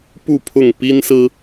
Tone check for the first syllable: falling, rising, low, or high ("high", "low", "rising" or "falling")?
falling